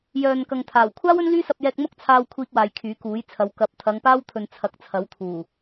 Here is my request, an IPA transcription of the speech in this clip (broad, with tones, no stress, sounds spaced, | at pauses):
j œː˨ n k ɐ˨ ŋ t̪ʰ aː˨˩ w kʷʰ aː˥ w ɵ˥ n l yː˥ s ɐ˧ p̚ j ɛː˧ k̚ m ʊ˥ k̚ t͡sʰ aː˧ w kʷʰ iː˧ k̚ w aː˨ j kʰ yː˨˥ k uː˨˥ j t͡sʰ ɐ˨˧ w k ɐ˨ p̚ t̪ʰ ɐ˨˧ ŋ p aː˥ w t̪ʰ ɵ˨ n t͡sʰ ɐ˨˥ k̚ t͡sʰ ɐ˨˥ w t̪ʰ uː˨˩